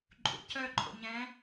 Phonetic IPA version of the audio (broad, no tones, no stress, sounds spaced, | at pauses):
ǃʼ ṵ c œ ǃʼ o̰ ɲ ɛ̃